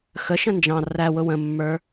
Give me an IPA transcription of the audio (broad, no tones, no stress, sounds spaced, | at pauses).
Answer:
x ə ʃ ə̃ n d͡ʒ ɑ̃ r æ w ʊ w ə̃ mː ə˞